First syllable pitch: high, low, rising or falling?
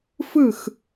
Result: falling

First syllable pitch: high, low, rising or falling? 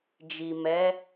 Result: low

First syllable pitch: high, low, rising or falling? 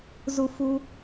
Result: low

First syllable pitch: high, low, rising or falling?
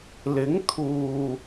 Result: rising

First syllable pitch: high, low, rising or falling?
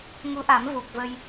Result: rising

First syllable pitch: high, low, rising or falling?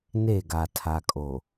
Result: falling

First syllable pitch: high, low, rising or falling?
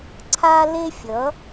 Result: high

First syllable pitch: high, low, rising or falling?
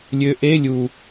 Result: rising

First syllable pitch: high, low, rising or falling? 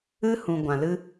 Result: high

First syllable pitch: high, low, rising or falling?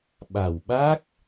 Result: low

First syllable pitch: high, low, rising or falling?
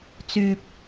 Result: high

